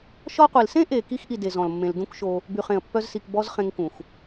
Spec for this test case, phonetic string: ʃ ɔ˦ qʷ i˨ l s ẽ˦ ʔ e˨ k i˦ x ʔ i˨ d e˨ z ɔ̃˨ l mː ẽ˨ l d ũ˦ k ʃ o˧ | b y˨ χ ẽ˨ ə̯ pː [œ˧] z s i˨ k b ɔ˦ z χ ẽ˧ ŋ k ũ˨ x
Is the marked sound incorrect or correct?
correct